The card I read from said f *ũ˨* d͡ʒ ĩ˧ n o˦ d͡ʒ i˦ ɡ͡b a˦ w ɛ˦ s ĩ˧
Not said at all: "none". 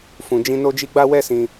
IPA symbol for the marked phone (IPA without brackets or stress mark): ũ˨